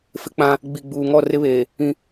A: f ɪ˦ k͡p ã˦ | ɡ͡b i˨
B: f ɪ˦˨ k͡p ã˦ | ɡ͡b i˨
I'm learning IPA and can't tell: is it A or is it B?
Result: A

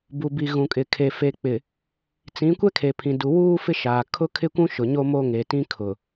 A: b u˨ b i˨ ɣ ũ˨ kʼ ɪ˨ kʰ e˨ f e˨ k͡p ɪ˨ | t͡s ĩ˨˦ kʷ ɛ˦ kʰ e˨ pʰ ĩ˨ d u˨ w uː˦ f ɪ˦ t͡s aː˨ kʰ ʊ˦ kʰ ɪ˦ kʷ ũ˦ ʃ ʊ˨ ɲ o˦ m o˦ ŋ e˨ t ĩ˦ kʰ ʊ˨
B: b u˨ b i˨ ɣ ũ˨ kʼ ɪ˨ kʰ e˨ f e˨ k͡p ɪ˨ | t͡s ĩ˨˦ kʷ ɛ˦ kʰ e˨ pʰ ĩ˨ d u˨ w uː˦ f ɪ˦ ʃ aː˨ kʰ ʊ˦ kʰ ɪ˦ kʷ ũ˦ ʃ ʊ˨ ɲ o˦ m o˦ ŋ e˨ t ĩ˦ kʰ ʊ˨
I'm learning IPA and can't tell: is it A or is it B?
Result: B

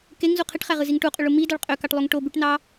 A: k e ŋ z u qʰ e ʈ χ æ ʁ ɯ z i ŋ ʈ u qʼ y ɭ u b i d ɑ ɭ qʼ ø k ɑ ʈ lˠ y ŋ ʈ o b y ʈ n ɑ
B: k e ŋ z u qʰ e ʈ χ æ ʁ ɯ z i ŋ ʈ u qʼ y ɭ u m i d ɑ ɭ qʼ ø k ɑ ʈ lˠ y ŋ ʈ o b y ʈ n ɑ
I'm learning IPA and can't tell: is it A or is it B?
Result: B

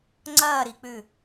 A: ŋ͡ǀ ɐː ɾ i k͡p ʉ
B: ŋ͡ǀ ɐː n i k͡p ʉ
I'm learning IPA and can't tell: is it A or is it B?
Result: A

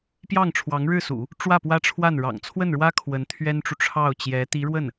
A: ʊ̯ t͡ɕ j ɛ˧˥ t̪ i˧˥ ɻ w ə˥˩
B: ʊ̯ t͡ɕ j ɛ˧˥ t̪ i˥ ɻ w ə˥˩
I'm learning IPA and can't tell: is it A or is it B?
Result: A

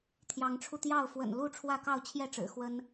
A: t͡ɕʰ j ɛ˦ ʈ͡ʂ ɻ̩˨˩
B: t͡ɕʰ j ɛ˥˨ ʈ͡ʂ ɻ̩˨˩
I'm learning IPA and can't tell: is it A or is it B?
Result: B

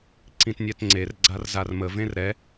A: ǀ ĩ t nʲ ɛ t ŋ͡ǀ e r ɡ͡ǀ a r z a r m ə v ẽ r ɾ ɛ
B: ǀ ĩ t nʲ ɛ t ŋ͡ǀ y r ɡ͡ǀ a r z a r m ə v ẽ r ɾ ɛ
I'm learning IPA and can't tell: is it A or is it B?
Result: A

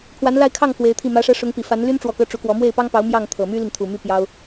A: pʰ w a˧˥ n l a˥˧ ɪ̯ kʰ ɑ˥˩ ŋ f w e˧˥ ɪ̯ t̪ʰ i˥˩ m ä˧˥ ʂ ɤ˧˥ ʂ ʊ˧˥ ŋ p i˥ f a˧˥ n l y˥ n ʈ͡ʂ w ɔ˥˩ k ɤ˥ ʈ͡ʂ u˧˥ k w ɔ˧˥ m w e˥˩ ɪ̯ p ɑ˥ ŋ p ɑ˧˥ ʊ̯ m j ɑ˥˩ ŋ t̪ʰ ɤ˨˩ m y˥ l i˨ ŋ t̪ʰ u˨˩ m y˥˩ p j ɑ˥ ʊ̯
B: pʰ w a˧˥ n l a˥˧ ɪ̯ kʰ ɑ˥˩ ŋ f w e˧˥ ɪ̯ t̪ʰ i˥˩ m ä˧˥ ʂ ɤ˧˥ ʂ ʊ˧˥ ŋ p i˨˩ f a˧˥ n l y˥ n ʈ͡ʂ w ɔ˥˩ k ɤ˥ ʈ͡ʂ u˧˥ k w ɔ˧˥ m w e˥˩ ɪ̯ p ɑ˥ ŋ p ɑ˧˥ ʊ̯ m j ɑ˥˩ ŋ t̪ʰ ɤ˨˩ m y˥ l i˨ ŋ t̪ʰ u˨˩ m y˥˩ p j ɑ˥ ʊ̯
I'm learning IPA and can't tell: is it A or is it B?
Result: B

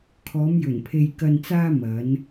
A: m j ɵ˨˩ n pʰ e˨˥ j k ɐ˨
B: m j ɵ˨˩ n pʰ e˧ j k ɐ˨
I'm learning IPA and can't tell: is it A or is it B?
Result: B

